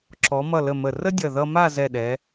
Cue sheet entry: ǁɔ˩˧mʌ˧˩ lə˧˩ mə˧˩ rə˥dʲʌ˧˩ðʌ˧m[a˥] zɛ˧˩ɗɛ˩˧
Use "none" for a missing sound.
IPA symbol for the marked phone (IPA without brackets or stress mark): a˥˧